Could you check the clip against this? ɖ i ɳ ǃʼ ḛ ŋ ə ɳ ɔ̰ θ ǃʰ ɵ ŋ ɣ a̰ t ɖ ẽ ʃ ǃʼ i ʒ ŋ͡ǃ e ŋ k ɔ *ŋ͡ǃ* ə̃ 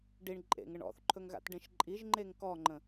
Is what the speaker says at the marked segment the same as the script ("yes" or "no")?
yes